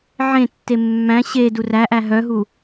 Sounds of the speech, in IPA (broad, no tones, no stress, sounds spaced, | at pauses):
ʕ ẽ tː e mː æ̃ ɕ e d u r æ ʔ æ ɦ œ ɦ u